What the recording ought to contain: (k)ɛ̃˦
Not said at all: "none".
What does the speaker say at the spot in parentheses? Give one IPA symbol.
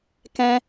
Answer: k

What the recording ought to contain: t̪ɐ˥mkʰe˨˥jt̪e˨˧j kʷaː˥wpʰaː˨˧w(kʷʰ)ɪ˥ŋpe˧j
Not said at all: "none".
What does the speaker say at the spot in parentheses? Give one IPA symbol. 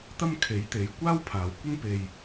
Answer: kʷ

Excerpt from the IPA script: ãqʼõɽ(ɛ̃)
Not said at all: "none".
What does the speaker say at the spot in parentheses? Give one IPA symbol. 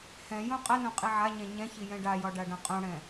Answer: ɛ̃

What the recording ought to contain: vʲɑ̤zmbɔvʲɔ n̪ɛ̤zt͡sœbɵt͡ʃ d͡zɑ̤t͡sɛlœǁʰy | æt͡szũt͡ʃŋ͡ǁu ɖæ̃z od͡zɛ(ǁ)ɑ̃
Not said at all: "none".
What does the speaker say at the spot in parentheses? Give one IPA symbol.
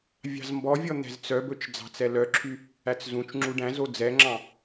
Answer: ŋ͡ǁ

